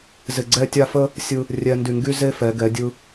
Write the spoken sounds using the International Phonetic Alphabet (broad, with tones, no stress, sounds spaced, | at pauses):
z ɪ˧˩ ɡ͡ǀ ɛ˥˧ tʲ a˥˧ f ə˥ | sʲ ɯ˧ | rʲ ɛ˧ n d y˧˩ ŋ ɡ y˥ z e˥ f ɛ˩˧ ɡ ɛ˩˧ dʲ ɯ˧